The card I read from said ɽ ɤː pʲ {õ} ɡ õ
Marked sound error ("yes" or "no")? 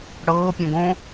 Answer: no